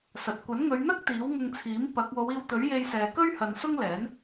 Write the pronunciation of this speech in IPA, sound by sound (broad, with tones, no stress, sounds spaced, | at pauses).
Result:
s ɐ˨ t̚ kʷ ɐ˨˥ n ŋ ɵ˨˧ ɥ n̪ ɐ˥ k̚ t̪ iː˨˥ w ŋ ʊ˧ ŋ t͡sʰ iː˨˥ m p ɐ˨˥ k̚ w o˨˧ w iː˧ w t̪ ɵ˨˥ ɥ j e˧ j s ɛː˨ k ɵ˥ ɥ h ɐ˨ n s ʊ˥ ŋ l ɛː˨˥ n